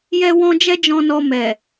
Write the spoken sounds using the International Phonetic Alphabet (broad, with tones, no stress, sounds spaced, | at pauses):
j ɛ˦ w ɔ̃˦ d͡ʒ ɛ˦ d͡ʒ ɔ̃˧ n ɔ˧ m ɛ˨